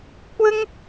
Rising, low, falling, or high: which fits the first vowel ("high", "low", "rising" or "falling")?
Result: high